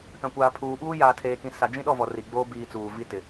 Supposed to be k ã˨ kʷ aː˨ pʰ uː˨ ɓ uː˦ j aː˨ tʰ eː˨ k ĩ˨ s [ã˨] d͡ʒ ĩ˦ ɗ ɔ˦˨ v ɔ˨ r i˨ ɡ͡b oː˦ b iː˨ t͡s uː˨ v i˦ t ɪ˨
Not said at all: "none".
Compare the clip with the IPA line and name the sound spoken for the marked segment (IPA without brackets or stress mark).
a˨